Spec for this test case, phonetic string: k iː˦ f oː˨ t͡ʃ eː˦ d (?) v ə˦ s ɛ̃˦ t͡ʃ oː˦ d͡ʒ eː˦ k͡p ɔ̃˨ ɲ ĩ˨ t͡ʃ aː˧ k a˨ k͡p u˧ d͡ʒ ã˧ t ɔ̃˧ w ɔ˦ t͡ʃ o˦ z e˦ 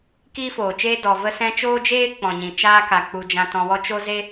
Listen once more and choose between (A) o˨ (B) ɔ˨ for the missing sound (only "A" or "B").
B